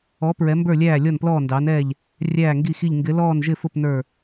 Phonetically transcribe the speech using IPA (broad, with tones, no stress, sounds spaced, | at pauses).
ɔ˨˥ p ɹ ɛ˨˥ m b ə˞˥˨ lʲ æː˥˨ lʲ ɔ˥˨ n p l ɔː˥˨ n d ɑː˨˥ n ɛː˥˨ ʎ | rʲ æː˥˨ ŋ ɡ i˥˨ x i˥˨ ʎ ŋ ɡ ɪ˨˥ l ɔː˥˨ n ʒ ɪ˥˨ f ʊ˥˨ p n ə˞˥˨